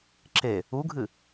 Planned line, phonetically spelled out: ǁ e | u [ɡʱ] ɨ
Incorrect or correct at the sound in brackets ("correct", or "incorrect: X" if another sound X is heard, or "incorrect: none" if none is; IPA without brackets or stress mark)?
correct